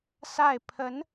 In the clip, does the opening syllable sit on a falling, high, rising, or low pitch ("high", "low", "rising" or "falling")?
falling